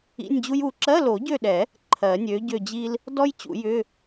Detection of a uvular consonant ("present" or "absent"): absent